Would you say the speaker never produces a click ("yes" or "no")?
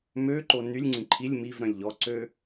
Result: no